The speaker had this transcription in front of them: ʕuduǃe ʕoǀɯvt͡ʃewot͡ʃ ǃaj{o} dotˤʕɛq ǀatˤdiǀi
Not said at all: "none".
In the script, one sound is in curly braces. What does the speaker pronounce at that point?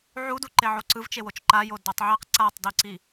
o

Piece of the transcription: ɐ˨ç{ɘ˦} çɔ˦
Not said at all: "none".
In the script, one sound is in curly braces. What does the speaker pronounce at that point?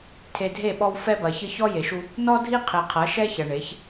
ɘ˦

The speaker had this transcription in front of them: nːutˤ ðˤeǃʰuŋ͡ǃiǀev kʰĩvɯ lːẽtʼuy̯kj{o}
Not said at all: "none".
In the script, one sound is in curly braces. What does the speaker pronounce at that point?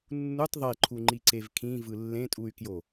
o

